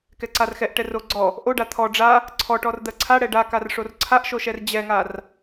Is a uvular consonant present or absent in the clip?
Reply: absent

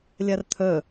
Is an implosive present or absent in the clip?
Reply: absent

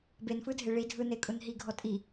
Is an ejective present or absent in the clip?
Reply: present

